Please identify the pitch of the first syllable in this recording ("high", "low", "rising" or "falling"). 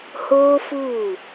high